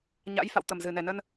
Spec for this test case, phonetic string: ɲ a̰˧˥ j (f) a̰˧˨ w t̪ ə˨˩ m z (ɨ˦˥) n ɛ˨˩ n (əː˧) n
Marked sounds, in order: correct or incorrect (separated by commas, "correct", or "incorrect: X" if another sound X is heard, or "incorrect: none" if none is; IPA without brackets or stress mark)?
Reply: correct, incorrect: ɨ˨˩, incorrect: ə˧